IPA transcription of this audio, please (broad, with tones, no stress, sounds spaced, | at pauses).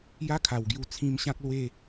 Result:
j a˦ kʰ a˨˩ w ɡ j u˧ t͡sʰ ĩ˧ m ɕ ã˦ k̚ l w e˥˧